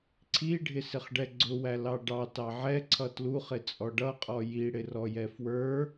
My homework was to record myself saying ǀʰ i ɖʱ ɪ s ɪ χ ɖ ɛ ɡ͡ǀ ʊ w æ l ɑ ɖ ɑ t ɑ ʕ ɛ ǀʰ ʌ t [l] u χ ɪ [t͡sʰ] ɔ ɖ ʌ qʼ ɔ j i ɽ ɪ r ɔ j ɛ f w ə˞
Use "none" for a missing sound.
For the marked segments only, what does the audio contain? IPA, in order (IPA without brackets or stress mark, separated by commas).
l, t͡sʼ